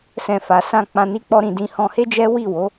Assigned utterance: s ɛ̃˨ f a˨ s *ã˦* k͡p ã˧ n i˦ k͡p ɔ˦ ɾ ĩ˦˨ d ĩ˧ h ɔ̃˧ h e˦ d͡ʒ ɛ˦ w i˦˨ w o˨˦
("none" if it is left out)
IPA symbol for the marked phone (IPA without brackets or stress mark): ã˧